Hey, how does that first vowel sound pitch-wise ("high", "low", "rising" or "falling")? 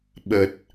low